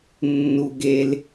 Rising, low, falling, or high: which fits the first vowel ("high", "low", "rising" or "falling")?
low